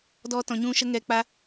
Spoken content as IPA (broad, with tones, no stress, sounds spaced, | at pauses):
d ɔ˨˦ t ɔ̃˨ ɲ ũ˧ ʃ ə˧ ŋ ɛ˨˦ k͡p a˧